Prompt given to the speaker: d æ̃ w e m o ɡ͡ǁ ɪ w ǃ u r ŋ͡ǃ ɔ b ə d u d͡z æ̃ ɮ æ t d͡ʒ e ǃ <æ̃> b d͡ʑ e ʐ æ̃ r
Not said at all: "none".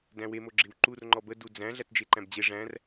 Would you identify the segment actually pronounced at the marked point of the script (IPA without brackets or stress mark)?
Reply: æ̃